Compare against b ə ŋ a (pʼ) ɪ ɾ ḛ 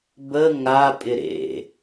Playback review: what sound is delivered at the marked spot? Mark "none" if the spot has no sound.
pʼ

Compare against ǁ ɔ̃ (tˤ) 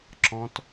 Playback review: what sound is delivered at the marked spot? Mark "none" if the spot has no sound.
t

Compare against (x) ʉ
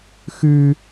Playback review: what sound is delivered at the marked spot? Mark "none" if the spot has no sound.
x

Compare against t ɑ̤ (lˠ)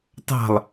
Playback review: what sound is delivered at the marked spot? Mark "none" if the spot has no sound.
lˠ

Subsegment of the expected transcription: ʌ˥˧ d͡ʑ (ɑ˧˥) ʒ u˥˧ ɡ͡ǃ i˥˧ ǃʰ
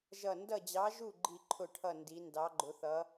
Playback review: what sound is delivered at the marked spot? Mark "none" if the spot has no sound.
ɑ˧˥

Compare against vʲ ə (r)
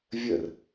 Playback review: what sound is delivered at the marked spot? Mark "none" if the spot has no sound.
r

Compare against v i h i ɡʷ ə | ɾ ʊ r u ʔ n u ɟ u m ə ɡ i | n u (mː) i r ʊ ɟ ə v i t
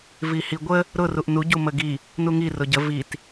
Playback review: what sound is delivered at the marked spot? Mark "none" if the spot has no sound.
ŋ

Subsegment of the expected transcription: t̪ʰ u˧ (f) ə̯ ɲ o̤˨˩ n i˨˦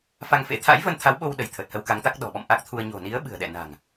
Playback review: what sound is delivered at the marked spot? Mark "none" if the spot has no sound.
none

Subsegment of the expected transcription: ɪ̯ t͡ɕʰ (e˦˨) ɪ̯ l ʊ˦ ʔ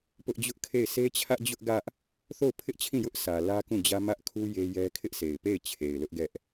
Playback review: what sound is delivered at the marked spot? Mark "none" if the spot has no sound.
e˨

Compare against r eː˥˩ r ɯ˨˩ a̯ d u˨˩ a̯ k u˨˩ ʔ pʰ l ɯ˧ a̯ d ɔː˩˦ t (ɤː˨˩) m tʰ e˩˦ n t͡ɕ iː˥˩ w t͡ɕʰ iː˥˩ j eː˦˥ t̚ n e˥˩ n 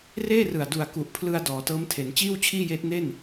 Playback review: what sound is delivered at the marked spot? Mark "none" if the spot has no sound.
ɤː˦˥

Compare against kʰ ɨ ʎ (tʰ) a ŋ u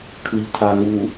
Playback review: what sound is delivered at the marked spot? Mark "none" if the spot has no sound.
tʰ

